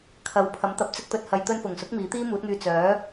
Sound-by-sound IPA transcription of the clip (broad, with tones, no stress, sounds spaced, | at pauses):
kʰ ɐ˨˧ w pʰ ɐ˨˥ m t̪ ɐ˨˥ p̚ t͡s ɪ˧ k̚ t̪ ɵ˨ t̚ h ɐ˨˧ j t̪ ɵ˧ n f ʊ˨˩ ŋ s ʊ˨˥ k̚ m iː˨˥ t̪ iː˥ m uː˨˥ t̚ ŋ yː˧ t͡s œː˨˥